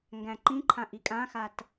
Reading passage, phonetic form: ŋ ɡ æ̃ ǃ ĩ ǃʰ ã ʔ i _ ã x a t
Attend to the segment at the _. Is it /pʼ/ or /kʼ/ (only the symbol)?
kʼ